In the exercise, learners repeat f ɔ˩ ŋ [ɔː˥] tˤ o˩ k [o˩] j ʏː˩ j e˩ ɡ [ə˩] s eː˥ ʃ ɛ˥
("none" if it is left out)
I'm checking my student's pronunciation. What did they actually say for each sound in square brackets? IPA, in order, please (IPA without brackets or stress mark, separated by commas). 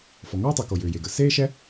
ɔː˥, o˩, ə˩